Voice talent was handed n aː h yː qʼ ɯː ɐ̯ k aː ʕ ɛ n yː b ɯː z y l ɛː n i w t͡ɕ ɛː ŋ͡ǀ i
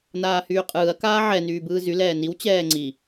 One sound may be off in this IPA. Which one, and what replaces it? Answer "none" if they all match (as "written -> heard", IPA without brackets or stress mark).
none